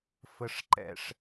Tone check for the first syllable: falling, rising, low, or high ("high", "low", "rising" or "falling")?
low